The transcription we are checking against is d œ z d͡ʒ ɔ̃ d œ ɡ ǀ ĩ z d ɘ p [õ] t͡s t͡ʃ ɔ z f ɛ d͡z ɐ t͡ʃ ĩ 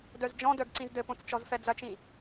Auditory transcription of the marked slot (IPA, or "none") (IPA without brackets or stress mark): õ